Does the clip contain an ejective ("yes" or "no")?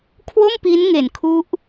no